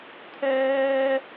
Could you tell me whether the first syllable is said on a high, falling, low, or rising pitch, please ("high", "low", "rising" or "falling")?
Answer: high